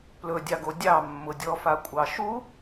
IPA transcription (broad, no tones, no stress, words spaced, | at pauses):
plɵdʲɑɡo dʲɑmːʊdʲɔfa kʷʼɑʃu